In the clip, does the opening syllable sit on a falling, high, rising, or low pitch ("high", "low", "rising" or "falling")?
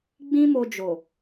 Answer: high